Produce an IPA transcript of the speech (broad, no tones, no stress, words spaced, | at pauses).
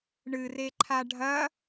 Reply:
ɳɨreǃʰa ɖʱɐ